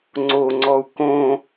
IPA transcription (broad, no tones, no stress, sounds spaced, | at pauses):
ŋ͡ǀ o ŋ͡ǀ ɔ u̯ k õ